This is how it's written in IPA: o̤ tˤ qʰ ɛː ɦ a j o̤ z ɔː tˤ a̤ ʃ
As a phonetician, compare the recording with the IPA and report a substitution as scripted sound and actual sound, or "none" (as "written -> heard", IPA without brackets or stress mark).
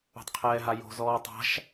none